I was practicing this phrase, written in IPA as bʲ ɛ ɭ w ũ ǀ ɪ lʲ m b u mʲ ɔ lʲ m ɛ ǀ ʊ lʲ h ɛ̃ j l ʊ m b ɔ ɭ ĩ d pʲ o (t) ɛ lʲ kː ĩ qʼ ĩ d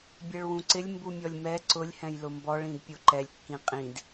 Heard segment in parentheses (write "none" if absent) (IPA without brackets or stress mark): ǃ